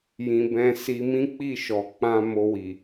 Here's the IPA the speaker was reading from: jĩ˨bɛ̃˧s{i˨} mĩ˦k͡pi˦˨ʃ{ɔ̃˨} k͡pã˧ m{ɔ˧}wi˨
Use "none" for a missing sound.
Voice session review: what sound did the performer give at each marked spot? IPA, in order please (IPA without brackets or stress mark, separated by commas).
i˧, ɔ˨, o˧